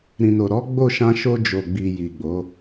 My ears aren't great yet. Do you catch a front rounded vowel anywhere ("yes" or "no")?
no